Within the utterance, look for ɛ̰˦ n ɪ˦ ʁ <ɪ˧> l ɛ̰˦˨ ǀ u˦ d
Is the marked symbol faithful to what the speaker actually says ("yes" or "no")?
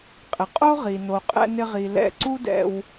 no